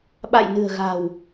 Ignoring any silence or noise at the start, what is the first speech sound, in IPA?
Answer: ɓ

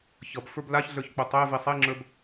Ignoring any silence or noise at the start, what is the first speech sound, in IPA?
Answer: ç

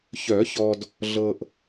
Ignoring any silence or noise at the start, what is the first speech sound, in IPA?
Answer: ç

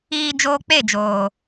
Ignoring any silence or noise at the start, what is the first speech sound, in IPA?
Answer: iː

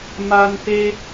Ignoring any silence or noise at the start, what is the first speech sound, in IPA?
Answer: m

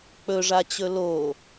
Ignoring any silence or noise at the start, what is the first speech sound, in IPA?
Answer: k͡p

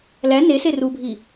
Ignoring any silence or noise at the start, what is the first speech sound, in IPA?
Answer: l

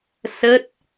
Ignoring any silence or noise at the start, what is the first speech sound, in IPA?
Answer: s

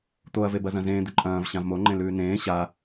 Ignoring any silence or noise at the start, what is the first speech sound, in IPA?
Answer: t̪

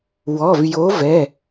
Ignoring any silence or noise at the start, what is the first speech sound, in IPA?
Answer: w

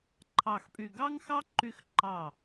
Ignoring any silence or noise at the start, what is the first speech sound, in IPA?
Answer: ǃʰ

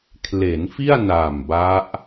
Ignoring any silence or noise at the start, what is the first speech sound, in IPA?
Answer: kʰ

